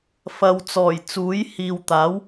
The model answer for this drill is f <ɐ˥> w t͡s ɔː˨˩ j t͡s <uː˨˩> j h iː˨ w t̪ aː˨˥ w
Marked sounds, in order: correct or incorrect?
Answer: incorrect: ɐ˨, incorrect: uː˨˥

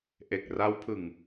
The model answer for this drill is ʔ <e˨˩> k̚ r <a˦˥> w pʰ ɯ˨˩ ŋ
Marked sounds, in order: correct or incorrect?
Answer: correct, correct

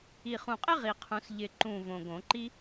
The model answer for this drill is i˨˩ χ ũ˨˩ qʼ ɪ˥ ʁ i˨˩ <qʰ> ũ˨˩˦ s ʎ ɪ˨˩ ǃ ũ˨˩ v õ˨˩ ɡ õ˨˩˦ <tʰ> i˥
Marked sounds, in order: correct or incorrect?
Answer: correct, incorrect: ǃ

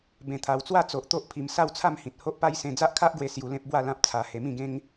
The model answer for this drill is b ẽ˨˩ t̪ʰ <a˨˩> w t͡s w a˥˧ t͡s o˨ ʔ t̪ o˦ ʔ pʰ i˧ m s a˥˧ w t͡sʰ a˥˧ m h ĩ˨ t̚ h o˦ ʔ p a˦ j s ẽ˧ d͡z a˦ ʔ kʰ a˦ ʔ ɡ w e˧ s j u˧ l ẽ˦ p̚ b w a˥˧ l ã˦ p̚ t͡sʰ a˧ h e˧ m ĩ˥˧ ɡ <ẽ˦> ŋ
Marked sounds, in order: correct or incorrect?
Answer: correct, correct

